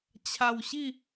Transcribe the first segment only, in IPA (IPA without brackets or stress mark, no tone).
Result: t͡ɕʰ